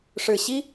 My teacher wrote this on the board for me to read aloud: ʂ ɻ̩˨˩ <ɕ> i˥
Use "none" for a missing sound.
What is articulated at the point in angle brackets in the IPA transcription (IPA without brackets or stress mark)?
ɕ